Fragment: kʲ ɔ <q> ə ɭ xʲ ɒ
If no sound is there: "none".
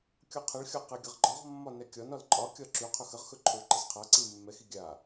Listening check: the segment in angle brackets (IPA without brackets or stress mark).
qʰ